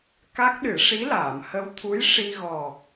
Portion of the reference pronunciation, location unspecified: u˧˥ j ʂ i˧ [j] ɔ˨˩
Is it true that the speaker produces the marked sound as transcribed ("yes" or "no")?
no